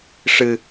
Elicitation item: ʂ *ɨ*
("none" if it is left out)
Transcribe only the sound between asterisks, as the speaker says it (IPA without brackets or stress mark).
ɨ